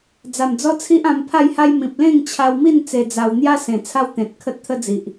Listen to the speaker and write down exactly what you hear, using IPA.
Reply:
d͡z a˨˩ m d͡z ɔ˦ t͡sʰ i˦ ʔ ã˧ m pʰ a˥˧ j h a˦ j m ĩ˨ p̚ l ẽ˥˧ ŋ t͡ɕʰ a˧ w m i˥˧ n t͡s e˧ d͡z a˧ w n̪ j a˦ s ẽ˨˩ t͡sʰ a˦ w t̪ ẽ˨ t̚ kʰ ə˦ t̚ t̪ʰ ə˦ d͡z i˨ ʔ

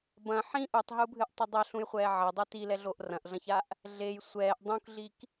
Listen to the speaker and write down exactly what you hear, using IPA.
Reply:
b ɐ̃ ħ ĩ ʔ u tˤ ɦ u bʱ ɨ ʔ tˤ ɨ dˤ ɐ ɬ ũ j χʷ ɛː ʕ ɐ dˤ e t i l ɛ ɮ o ʔ r ɐ̃ ʔ ɮ ɐ̃ ç a ʔ | ɮ e j sʷ ɛː ʔ dˤ ũ k ɮ i k

